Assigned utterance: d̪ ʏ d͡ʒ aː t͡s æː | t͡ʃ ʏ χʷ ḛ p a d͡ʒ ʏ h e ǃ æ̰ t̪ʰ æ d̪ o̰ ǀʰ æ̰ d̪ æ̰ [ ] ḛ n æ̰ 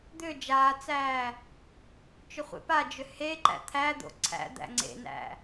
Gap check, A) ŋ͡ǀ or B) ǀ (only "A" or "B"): A